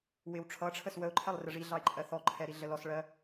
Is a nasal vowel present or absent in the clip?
absent